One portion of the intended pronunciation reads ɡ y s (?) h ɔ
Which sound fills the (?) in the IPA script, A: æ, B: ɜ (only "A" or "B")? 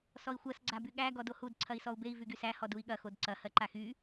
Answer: A